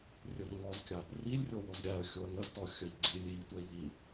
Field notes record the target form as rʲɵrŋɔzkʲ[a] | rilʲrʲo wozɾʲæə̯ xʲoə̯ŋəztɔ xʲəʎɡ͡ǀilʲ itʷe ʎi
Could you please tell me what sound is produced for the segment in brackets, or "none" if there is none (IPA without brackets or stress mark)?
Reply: a